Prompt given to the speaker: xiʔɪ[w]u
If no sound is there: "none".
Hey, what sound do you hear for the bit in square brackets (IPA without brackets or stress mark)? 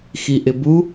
b